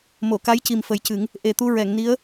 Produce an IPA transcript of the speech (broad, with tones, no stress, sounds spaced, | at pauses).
m o˨˩˨ k a˧˥ j c i˨˩ m f ə˨˩˦ j c ɨ˨˩˦ ŋ | ʔ e˨˩ t̪ u˧ ɹ ɛ˨˩˨ ŋ n i˧˥ ə̯